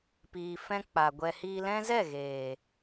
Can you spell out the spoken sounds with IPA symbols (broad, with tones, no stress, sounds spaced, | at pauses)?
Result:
p iː˨ f ɛ̃˧ k͡p a˨ ɡʷ ɛ˨ h iː˧ l ɛ̃˦ z ɛ˦˨ ɣ eː˨